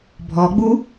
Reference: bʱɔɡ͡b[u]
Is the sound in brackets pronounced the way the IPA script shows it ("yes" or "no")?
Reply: yes